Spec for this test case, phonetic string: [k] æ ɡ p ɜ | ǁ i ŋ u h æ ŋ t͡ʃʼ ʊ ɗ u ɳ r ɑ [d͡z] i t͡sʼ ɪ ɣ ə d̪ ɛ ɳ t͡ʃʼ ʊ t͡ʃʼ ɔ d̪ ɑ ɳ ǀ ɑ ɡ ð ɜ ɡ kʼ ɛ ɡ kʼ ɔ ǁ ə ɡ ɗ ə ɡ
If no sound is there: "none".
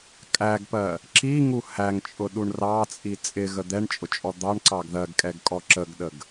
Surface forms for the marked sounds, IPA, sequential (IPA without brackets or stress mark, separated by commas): kʼ, t͡sʼ